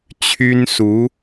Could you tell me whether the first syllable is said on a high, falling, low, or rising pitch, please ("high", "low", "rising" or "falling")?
high